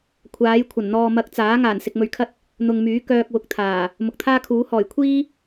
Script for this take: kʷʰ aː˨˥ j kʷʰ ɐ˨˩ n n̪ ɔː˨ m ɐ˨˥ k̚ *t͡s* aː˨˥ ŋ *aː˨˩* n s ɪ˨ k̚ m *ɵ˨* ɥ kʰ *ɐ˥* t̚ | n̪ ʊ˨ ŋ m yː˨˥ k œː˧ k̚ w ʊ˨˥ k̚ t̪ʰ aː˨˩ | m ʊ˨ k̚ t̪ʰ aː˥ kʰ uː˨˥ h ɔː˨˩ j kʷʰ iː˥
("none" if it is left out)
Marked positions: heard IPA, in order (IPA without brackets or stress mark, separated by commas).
t͡s, aː˨˩, ɵ˨, ɐ˥